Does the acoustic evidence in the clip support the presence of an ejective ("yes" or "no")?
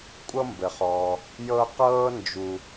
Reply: yes